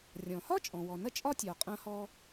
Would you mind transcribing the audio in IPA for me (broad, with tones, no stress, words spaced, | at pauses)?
rʲɔ̃˩hɒ˥t͡ʃʼɔ̃˩ wɔ˩nɐ˥t͡ʃʼɒ˥ tʲɒ˩ qʼɐ̃˥hɔ˥